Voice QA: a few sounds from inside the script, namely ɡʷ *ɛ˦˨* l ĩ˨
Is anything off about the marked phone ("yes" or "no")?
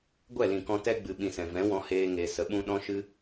no